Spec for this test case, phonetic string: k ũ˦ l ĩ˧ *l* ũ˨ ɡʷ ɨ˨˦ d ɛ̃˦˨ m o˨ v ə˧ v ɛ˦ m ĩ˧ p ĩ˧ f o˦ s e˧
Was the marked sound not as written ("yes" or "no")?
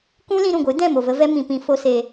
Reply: yes